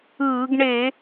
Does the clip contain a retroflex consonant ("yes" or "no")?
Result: yes